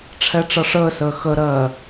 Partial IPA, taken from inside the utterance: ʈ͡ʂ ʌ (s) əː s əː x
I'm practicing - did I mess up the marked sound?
yes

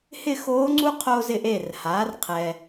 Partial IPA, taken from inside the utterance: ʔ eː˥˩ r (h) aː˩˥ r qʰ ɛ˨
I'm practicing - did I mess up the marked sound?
no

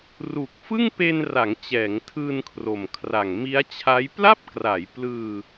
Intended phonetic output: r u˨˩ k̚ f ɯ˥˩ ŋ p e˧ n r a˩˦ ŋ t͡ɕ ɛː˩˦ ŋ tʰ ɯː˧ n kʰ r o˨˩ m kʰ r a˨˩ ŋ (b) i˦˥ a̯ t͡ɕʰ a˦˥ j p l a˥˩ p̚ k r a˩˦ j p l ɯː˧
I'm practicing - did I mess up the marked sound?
yes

